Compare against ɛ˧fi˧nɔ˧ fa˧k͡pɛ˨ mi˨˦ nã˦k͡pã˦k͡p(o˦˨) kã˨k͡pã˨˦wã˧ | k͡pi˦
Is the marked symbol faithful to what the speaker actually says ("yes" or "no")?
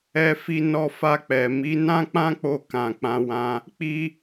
no